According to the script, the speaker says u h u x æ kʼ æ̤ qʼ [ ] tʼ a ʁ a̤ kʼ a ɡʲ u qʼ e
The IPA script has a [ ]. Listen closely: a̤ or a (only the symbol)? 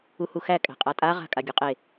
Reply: a